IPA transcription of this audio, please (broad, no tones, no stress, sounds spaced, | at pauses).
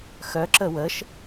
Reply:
x œ ǁ ə w ə ʃ